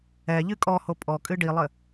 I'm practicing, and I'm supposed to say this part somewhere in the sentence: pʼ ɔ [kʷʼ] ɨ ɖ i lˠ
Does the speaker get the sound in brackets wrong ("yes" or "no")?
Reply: yes